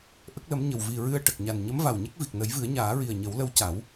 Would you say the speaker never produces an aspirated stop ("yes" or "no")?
yes